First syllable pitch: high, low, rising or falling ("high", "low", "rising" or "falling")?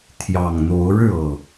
low